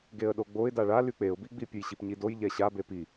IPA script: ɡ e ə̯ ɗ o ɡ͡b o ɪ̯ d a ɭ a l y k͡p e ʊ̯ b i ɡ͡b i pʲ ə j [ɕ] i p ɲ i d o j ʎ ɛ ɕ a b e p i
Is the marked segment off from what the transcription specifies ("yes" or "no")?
no